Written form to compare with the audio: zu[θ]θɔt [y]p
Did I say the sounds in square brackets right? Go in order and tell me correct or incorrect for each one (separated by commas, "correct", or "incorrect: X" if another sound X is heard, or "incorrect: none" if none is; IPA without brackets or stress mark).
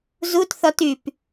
incorrect: t, correct